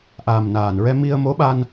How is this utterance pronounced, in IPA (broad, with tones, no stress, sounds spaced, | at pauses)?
ʔ aː˨˩ m n aː˨˩ n ɹ ɛ˧ m i˧ ə̯ m o˧˥ ɓ a˧ n